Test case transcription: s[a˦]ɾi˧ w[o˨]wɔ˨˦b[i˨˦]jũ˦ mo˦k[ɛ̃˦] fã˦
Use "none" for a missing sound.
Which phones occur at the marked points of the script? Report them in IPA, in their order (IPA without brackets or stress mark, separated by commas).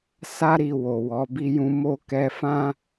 a˦, o˨, i˦, ɛ˦